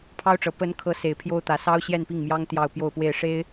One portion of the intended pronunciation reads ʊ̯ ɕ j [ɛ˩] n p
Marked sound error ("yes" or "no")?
yes